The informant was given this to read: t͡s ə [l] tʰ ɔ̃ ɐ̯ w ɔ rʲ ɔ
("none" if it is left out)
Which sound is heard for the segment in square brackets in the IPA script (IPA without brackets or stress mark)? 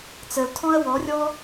l